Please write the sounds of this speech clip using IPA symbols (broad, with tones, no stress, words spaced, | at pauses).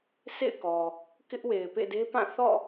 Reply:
sḛ˦˨ɪ̯kɔ˨ | kɪ˦ʔwe˨ɪ̯ pḛ˦˨de˦pã˦˨ θɔ̰˦˨